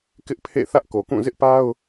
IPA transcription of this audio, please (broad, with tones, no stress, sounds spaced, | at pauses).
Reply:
k ɪ˦ ʔ pʰ ḛ˦˨ θ ä˦ ʔ k o˨ k ũ˦˨ z ɪ˦ ʔ p a˦ ʊ̯